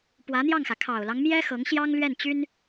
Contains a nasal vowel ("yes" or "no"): no